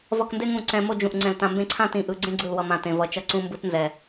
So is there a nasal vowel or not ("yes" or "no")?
yes